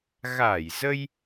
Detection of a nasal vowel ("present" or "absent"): absent